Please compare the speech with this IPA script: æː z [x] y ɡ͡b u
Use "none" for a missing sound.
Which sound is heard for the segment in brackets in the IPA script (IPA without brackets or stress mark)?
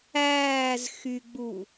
x